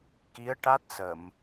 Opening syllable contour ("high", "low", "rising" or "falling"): rising